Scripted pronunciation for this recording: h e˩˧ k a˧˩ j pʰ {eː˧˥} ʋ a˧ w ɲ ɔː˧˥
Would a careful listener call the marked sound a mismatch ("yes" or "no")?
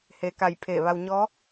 yes